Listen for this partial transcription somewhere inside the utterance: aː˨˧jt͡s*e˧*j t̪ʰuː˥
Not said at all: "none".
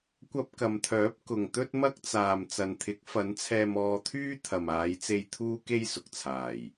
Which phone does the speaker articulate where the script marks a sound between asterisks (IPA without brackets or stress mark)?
e˧